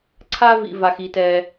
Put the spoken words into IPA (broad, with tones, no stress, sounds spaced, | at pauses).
ǀʰ a˦ v ḭ˨ v a˨ x i˨ t ɛː˨